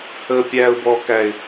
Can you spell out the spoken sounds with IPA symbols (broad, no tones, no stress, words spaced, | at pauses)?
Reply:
həːpʲæːʊ̯bɔkæɪ̯